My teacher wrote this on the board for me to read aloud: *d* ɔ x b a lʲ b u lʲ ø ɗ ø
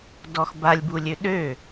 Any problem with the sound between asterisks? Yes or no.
no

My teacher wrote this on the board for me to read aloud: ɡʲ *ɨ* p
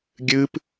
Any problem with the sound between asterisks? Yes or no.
no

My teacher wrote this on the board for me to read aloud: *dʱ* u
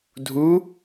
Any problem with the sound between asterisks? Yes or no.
no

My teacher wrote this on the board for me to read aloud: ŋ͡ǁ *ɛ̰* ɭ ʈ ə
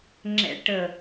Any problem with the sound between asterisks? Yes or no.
no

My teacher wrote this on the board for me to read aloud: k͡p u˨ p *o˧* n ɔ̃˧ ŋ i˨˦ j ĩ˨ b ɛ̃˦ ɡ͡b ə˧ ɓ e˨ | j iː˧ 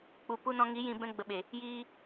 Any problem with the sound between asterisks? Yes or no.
yes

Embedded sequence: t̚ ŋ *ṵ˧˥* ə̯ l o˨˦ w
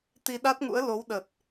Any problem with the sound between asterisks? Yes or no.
no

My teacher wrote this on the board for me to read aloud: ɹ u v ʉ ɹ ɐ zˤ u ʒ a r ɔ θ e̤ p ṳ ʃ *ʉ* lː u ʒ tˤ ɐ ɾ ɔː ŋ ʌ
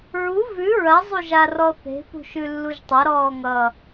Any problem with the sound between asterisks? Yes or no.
no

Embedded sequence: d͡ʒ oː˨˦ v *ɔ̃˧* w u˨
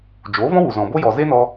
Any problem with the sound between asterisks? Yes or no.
yes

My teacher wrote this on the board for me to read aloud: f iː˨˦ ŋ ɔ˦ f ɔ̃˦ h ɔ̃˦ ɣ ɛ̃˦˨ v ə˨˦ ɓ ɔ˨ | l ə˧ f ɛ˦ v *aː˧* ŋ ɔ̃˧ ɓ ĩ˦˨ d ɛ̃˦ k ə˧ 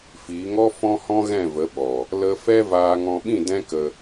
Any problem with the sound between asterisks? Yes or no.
no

